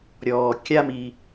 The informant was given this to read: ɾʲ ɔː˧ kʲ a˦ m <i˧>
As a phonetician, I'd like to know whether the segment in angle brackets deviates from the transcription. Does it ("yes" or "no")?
no